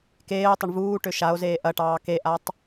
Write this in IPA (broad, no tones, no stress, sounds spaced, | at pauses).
k eː o̯ tˤ ə ɳ v uː ʈ ø ʃ a o̯ z eː ʔ ɐ ʈ ɑː k e ʔ a tˤ